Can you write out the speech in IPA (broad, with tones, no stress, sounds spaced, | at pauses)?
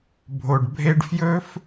bʱ o˨ ɖ bʱ e˧ ɖ f j ɵ˦ f